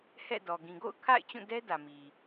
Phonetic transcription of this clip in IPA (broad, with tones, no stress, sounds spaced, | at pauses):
h ɛ̰˦˨ d ɔ˨ ɡ ĩ˨ ɡ o̰˦˨ ʊ̯ kʰ a̰˦˨ ɪ̯ t͡ɕ ũ˦˨ d ɛ˦ d ä˨ m i˨